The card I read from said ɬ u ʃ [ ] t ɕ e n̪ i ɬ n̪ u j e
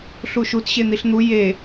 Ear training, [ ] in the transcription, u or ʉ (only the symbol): u